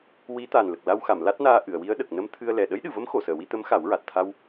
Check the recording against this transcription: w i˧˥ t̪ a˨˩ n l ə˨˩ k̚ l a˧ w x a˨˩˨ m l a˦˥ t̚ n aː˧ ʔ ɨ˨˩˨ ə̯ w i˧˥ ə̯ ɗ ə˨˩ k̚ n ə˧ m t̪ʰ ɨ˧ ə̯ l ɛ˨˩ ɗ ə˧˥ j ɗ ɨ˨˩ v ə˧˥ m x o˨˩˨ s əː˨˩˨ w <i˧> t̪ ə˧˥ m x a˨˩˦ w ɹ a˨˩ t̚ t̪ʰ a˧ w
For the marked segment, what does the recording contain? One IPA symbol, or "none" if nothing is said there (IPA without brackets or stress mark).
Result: i˧